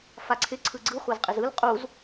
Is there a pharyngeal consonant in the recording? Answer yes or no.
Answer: no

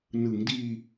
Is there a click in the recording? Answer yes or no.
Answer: no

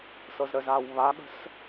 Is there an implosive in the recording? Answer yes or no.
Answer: yes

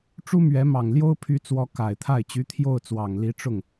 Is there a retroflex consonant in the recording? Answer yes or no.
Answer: yes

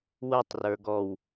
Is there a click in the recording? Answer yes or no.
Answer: no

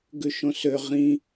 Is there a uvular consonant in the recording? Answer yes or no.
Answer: yes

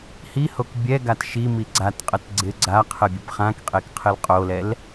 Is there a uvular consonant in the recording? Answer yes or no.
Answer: yes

